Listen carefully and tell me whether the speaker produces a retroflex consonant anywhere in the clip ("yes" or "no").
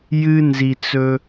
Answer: no